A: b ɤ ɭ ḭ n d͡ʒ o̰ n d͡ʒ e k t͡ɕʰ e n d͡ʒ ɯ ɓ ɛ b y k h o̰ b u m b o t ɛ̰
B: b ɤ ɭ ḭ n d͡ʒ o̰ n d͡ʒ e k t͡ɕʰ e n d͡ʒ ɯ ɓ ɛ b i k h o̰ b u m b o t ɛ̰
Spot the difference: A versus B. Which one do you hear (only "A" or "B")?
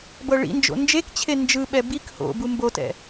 B